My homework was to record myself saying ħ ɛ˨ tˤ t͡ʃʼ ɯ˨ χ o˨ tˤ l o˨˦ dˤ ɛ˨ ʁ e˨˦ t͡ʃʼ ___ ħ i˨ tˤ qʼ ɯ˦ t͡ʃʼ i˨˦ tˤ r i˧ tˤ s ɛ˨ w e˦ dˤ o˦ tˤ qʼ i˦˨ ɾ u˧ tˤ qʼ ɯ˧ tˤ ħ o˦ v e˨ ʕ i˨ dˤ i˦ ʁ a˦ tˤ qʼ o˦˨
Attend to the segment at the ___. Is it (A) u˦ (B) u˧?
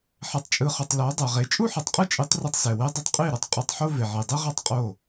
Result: A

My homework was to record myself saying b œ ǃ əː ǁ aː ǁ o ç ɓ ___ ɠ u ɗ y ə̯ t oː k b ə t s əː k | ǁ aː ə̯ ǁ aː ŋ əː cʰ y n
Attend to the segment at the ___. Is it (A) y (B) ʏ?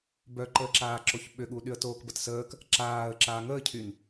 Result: B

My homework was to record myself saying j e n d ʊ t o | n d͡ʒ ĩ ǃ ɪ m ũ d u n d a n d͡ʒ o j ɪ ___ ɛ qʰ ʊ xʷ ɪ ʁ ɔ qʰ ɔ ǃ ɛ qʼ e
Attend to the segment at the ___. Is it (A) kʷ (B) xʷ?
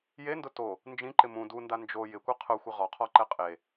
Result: A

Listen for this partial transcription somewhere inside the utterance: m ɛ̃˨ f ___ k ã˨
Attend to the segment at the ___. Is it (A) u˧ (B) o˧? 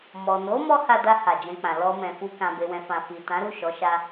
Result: A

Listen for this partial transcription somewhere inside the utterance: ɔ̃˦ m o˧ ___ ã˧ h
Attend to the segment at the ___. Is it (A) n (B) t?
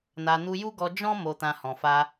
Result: B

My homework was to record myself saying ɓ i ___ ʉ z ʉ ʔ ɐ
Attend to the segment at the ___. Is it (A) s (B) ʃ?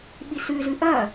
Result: A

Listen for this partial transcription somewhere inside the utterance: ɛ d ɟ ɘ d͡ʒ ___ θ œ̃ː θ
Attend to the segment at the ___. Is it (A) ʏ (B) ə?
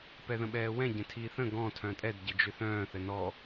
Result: A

